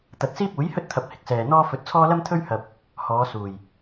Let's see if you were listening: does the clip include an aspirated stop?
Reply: yes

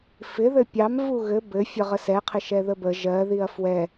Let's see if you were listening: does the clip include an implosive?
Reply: no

